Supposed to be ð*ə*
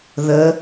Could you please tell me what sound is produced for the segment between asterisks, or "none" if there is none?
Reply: ə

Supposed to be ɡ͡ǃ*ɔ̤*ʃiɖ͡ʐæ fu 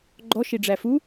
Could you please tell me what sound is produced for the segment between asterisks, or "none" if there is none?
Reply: ɔ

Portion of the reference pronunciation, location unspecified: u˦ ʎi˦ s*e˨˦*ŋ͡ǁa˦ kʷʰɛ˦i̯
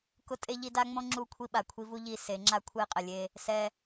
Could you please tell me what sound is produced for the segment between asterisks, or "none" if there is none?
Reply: e˨˦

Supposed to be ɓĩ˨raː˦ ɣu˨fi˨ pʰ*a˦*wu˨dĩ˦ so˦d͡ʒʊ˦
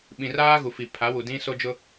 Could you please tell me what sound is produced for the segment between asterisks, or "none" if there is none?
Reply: a˨˦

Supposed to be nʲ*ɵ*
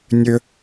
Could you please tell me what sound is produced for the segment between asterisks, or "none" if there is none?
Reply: ɵ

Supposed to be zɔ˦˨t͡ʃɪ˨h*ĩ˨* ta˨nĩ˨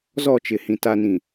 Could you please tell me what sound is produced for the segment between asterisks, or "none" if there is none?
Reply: ĩ˨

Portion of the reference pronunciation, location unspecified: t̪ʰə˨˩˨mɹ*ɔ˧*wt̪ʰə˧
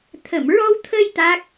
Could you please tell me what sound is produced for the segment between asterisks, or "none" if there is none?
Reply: ɔ˧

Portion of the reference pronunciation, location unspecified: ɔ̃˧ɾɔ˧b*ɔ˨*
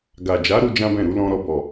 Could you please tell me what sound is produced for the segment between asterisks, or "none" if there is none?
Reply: ɔ˨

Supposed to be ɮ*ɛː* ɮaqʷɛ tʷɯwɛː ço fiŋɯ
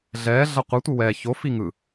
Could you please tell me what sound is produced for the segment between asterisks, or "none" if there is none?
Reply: ɛː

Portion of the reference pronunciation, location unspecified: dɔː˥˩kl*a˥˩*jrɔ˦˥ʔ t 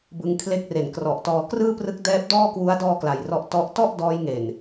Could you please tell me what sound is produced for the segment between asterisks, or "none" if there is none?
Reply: a˧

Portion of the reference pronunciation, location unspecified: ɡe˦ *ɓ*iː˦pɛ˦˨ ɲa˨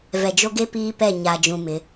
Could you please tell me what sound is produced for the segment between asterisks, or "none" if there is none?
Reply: p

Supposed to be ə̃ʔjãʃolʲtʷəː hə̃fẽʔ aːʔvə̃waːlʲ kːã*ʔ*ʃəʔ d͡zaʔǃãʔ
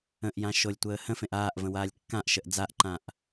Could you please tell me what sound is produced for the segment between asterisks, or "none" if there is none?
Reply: ʔ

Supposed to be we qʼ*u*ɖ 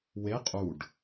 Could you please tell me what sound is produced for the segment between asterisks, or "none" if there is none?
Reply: u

